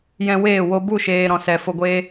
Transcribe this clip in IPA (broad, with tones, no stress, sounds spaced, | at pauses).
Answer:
j ɛ̃˧ w eː˦˨ w o˧ b u˦˨ ʃ eː˨ ɾ ɔ̃˨ s ɛ˨ f o˧ ɡʷ e˦